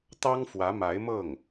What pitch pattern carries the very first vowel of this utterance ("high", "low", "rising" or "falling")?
high